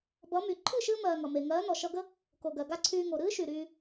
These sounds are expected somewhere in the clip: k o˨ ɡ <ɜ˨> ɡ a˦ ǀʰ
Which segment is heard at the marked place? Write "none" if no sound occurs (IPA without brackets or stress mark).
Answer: ɜ˨